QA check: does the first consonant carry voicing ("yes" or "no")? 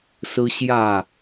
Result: no